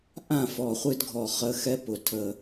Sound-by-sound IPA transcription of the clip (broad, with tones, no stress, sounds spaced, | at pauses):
ʔ ã˦˨ f ɔ˨ χʷ ɨ˦ d ɡʱ ɔ˨ χ ə˧ x ɛ˦ p ʊ˨ tʰ ə˧